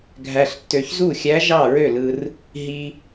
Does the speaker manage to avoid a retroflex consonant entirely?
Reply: yes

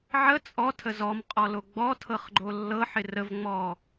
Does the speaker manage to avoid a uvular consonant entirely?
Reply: no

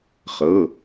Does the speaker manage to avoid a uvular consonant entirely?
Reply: no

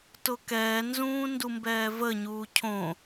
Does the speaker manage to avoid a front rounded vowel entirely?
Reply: yes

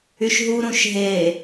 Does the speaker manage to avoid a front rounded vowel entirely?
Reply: no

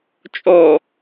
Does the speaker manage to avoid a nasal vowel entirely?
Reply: yes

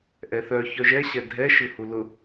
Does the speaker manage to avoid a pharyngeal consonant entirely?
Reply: yes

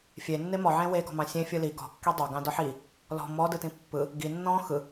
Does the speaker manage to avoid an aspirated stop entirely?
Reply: yes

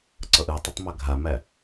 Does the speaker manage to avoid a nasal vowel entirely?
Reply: yes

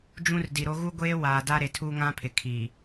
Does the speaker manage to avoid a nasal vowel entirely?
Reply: no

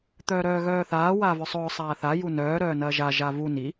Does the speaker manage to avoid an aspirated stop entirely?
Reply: yes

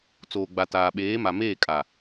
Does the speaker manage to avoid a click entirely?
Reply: yes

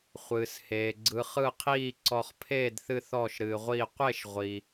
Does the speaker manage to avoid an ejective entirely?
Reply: yes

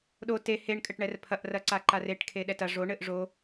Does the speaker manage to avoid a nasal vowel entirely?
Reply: yes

